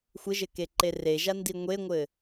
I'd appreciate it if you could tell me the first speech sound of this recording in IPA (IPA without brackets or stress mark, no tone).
xʷ